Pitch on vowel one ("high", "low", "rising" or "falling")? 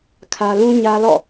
high